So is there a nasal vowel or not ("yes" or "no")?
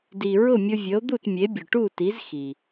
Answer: no